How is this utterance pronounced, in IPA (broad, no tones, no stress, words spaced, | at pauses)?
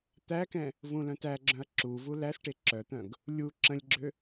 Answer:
t̪ækɛ̃ | vũlœ̃tæɡ͡ǁœ̃ɐ̯ ǁuvu læsʈe ǁœt̪œ̃ɡ | lʲu ǁə̃lʲɡ͡ǁʏ